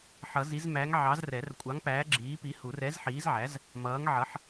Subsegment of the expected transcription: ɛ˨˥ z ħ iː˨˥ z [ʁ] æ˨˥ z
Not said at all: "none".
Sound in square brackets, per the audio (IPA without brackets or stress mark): ʕ